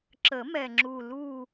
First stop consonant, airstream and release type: click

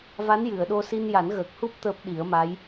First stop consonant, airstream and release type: implosive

